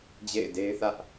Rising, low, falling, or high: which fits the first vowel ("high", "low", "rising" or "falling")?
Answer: falling